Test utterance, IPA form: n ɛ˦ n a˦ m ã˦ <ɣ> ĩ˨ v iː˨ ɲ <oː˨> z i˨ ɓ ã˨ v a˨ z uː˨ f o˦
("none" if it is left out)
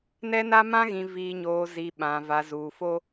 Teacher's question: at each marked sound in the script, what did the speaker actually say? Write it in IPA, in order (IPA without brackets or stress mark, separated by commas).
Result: ɣ, oː˨